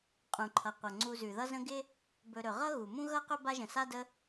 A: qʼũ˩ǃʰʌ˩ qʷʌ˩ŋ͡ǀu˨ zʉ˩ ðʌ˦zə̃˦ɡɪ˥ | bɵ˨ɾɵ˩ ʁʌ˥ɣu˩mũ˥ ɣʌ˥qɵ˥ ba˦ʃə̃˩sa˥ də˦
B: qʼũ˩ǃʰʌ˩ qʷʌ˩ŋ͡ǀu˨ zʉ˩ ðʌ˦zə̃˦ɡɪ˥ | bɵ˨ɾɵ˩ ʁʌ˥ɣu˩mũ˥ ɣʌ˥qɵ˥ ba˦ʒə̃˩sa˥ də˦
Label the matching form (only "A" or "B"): B